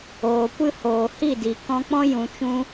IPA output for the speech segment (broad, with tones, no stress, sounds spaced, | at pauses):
oː˨ kʷ ɨ˦ h oː˨ h i˦˨ d i˨ k ɔ̃˧ k͡p ɔ̃˦ j ũ˧ t͡ʃ ũ˦